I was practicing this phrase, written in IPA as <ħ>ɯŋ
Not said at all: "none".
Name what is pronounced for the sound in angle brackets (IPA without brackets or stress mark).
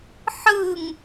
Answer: ħ